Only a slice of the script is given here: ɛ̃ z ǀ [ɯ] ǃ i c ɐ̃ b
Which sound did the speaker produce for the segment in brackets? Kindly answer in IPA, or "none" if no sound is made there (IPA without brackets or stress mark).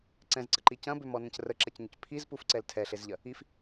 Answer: ə